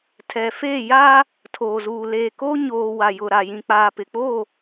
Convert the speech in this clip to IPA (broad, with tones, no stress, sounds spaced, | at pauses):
tʰ ɛ˨ f eː˦˨ j a˦ | tʰ oː˨ z uː˨ l eː˨ k o˦ ɲ oː˨ w a˨ j ʊ˨ ɾ a˨ j ĩ˨ k͡p aː˨ p ɪ˨ k͡p o˦˨